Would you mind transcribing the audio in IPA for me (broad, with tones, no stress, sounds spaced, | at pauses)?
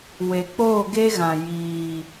w e˨ k͡p oː˦˨ ɡ e˦ ɣ ã˨ j iː˨